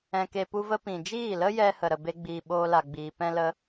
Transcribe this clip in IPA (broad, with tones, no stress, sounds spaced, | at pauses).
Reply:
ɛ̃˧ k e˧ p u˦ v ə˦ p ĩ˨ d͡ʒ iː˦˨ l ə˦ j ɛ˦ h ə˨ ɾ ə˨ b e˧ ɡ͡b iː˨ ɓ oː˧ l a˨ ɡ͡b iː˨ p ɛ̃˦ l ə˦